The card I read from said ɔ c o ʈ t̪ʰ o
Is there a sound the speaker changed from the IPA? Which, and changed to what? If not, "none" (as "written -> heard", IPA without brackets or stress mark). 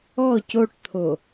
none